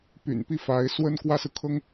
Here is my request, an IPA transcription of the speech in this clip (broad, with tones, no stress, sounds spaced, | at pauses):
p y̰˨˩ n p i˥˩ f a˧˥ ɪ̯ s w ə˥ n k w ä˥ s ɹ̩˨ kʰ ɤ˥ ŋ